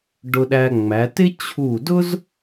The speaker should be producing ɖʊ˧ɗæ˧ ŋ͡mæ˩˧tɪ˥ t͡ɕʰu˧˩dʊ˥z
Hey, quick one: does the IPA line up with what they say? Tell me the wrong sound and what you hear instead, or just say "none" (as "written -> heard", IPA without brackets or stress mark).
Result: none